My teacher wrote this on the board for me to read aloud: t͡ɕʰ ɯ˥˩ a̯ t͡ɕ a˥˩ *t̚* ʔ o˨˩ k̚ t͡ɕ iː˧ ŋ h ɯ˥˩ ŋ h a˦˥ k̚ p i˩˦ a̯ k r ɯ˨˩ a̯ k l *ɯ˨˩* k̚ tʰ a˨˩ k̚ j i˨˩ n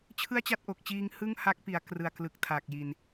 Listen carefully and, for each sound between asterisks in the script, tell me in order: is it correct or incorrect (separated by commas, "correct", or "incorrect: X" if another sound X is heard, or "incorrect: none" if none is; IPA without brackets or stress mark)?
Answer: correct, correct